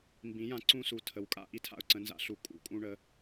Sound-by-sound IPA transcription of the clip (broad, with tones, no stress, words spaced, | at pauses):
mbĩ˩˧jã˩˧ ǀũ˧su˩˧ tʰə˩˧wkʼa̰˧ ʔi˧tʰa̰˧ʊ̯ǀə̃˩˧ nza̰˩˧ɬu˩˧ kʼṵ˩˧kʼũ˧ ɳə˩˧